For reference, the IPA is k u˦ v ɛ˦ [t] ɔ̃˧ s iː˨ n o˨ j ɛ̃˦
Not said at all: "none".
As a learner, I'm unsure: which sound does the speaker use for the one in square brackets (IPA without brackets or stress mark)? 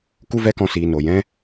k